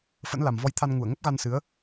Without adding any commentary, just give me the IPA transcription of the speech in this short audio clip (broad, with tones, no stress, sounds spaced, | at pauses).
f ə̰˧˥ n l a˨˩ m v ɔ˧ j t̪ʰ a˧ n ŋ u˧˩ ə̯ ŋ ə˦˥ p̚ ɣ a˧ n s ɨ˨˦ ə̯